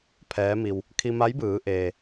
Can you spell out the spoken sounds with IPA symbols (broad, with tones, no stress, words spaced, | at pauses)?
pʰɛː˧˥mi˧w | kʰi˧ma˧˥jbɯː˩˧ʔeː˩